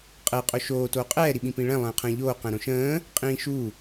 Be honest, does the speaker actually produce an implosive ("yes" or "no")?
yes